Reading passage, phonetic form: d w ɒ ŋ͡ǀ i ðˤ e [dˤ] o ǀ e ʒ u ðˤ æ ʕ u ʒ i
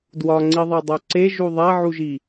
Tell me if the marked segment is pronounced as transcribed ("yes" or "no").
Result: yes